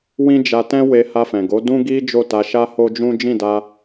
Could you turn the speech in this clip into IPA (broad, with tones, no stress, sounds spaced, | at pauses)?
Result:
w ĩ˦ d͡ʒ a˧ t ɛ̃˦ w e˧ h a˧ f ɛ̃˨ ɡ o˨˦ d ũ˦ ɡ i˦ d͡ʒ o˦˨ t a˧ ʃ a˦ h o˦ d͡ʒ ũ˦ d͡ʒ ĩ˦˨ d a˧